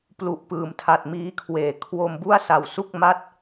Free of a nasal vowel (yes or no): yes